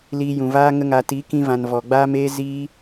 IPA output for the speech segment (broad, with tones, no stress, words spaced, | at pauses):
liː˧jũ˨vaː˦ ŋə˧ŋa˨ ti˨˦kĩ˧vã˨n vɔ˨ɡ͡baː˦meː˦ziː˦